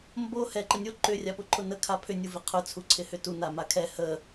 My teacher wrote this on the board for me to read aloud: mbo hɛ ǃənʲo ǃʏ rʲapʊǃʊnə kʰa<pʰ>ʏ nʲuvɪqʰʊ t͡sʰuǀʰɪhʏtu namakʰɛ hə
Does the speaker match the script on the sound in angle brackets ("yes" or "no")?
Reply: yes